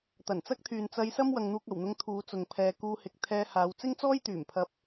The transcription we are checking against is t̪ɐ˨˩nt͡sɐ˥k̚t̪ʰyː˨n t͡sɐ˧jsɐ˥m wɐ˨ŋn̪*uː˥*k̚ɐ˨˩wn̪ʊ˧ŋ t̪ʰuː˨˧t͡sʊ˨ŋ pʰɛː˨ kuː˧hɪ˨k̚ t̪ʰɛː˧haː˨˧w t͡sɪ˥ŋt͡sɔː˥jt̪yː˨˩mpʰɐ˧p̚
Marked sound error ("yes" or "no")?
yes